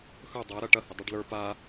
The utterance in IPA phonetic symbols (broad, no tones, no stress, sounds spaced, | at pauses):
x ɵ dˤ a ɾ ɐ ʈ ɐ h ə dˤ ɨ ɖ l ə˞ p a